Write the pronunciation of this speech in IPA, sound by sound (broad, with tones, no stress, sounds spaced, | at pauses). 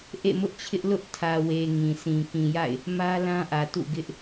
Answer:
ʔ ḛ˦˨ m ʊ˦ ʔ t͡ɕʰ ɪ˦ ʔ l ʊ˦ ʔ tʰ ä˨ w e˨ ŋ ĩ˨ sʰ ĩ˨ k ĩ˨ j a̰˦˨ ɪ̯ | m ä˦ l ã˦ ʔ ä˨ t ṵ˦˨ ɡ ɪ˦ ʔ